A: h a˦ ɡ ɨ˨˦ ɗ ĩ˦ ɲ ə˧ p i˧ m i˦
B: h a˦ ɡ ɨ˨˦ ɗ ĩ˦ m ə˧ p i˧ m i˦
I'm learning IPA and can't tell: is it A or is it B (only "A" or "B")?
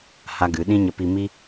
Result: A